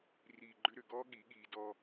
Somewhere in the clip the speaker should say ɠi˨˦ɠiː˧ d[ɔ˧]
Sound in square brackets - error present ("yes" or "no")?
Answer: no